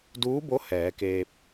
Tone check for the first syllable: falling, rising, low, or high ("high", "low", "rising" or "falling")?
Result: rising